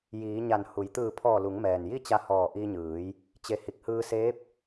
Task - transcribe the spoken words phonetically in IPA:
jiː˩˧ ɲa˧˩nhu˩˧j t̪ɯː˧˩pʰɔː˧˩ lu˩˧ŋmɛː˩n ji˥˨t͡ɕa˧ hɔː˧˩ʔi˧ɲɯː˩˧j | t͡ɕe˧˩ hi˧˩k̚hɯː˧seː˧˥p̚

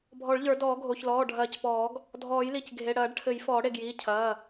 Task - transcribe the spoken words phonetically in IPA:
bʱɔ˨˩˦ɭʎə˞˨˩˦ dɔː˨˩˦ɡʱo˩˧˩çlɔː˩˧˩ ɖʱɐː˨˩˦cpɔː˨˩˦ɡ | dʱɔː˨˩˦jli˩˧˩cɡʱe˩˧˩ ɽɐː˨˩˦ɖʈʰɘ˨˩˦j fɔː˨˩˦ɽe˩˧˩ɡjiː˩˧˩ cʰɐː˩˧˩

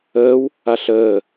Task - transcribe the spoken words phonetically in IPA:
əːw | aɬəː

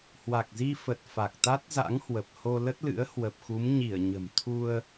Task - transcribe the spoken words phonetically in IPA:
hwa˨˩k̚zi˧fə˨˩t̚ fa˨˩k̚t̪a˦˥t̚za̰˧˥ŋhwə˨˩p̚ ho˧lə˦˥t̚lɨ̰˧˥ə̯ hwə˨˩p̚xu˨˦m ɲi˧˩ə̯ ɲə̤˨˩m t̪ʰu˧ə̯

